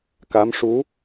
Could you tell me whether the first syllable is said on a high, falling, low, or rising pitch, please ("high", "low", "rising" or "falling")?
rising